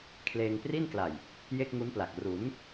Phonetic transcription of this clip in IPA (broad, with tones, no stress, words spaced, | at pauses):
kʰleː˧ŋpri˥˩nkla˨˩j | je˥˩k̚ŋu˦˥npla˨˩k̚ ru˩˦n